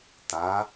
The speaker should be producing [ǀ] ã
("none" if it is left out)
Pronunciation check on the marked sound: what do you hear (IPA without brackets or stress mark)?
t̪